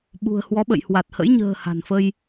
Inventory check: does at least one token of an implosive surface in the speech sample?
yes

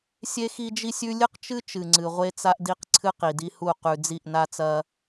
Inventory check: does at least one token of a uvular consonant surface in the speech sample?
yes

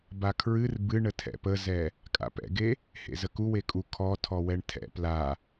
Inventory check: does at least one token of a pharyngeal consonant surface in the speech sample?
no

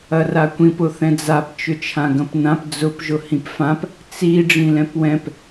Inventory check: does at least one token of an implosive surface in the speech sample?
no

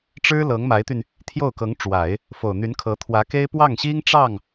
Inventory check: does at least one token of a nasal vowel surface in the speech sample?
no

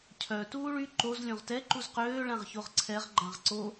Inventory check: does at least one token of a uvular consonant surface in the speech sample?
yes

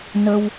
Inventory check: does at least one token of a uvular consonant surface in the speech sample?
no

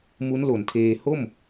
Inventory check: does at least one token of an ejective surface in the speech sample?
no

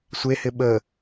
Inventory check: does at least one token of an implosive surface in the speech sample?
yes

